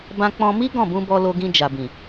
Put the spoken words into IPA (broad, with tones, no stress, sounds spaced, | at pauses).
b ã˧ k͡p ɔ̃˧ m i˦ ɡ ɔ̃˦˨ b ũ˧ b ɔ˧ l o˧ ɡ ĩ˧ d͡ʒ a˨ b ĩ˨